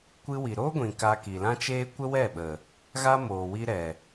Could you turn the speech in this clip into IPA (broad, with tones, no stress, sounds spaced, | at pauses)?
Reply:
kʷ ɨ˧ w i˨ ɾ oː˦ ɡʷ ĩ˨ k a˧ k i˨ l ã˦ t͡ʃ eː˦ kʷ ə˦ w ɛ˦˨ ɓ ə˨ | ɣ a˦ m oː˨ w i˧ ɾ ɛ˨